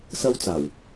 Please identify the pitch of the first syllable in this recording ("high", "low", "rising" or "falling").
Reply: high